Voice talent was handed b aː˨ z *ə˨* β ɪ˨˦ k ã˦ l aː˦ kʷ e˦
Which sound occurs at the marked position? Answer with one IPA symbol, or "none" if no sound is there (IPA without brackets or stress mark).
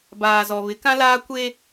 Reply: ɔ˨